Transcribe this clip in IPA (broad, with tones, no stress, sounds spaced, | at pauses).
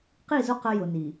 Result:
q i˦˨ z ʊ˦ q ə˦ j ʊ˨ n i˨